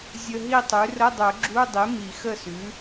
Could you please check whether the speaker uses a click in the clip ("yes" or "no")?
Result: yes